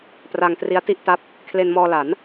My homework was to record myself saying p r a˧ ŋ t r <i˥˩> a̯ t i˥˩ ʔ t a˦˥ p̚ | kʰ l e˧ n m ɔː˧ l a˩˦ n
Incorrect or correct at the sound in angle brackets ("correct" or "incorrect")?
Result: incorrect